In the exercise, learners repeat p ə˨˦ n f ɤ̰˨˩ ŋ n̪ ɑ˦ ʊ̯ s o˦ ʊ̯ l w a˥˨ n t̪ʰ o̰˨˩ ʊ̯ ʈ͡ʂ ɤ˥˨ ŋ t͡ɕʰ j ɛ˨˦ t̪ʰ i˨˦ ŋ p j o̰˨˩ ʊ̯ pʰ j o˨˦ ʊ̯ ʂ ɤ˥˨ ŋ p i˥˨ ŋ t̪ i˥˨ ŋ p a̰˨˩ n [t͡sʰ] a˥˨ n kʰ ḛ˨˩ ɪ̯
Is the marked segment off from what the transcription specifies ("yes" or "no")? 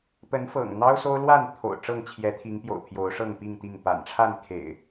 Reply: yes